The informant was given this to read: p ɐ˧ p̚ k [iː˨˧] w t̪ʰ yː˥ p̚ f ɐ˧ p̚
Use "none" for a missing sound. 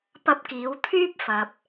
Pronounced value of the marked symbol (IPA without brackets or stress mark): iː˨˧